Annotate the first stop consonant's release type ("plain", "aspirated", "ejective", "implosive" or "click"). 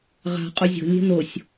ejective